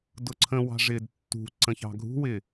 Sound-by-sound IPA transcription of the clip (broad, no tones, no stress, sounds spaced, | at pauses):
d ʊ ǀʰ ə̃ w ɑ̤ ʐ ɪː d tː ṳ ǀ ə̃ ç ɑ̤ ɡʱ ṳ w ɪ